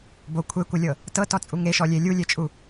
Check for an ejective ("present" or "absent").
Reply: present